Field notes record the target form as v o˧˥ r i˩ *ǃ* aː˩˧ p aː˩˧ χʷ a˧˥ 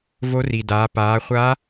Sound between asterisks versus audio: incorrect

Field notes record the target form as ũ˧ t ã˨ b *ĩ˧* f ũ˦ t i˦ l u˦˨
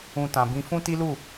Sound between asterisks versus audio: correct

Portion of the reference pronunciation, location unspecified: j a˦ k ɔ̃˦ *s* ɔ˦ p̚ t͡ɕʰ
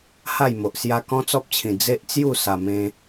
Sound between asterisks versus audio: incorrect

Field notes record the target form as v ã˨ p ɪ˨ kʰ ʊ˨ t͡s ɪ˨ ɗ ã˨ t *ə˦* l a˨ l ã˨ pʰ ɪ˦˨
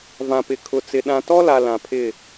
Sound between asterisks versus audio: incorrect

